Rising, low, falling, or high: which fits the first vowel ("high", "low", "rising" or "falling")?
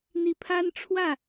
rising